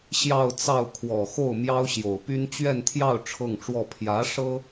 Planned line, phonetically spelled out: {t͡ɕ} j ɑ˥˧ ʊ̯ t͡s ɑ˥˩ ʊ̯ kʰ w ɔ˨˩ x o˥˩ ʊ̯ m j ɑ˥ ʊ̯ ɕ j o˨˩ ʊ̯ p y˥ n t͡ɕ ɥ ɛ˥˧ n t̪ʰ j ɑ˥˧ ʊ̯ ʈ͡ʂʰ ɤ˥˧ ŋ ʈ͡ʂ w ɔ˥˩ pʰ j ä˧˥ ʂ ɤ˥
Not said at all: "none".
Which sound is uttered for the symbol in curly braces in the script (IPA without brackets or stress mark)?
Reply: ɕ